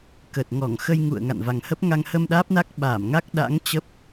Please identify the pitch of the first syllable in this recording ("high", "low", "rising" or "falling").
low